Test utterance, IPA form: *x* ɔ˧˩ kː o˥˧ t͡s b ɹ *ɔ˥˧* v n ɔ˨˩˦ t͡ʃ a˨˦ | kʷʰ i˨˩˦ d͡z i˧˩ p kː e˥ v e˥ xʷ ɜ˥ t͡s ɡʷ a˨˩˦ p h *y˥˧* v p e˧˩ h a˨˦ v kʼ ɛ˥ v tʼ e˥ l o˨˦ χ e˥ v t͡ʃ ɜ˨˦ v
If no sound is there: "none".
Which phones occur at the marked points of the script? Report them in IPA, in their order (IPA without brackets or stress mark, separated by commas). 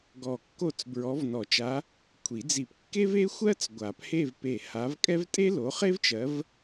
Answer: ɡ, ɔ˨˦, e˥˧